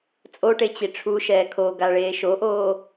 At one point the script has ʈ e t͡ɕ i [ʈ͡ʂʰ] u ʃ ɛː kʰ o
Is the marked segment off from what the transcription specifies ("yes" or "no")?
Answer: no